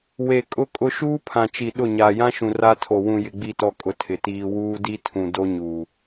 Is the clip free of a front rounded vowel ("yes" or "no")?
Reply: yes